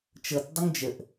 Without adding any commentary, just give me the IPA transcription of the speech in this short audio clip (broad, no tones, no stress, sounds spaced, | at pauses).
t͡ʃ ɤ t dˤ ʊ ŋ d͡ʒ ə ʔ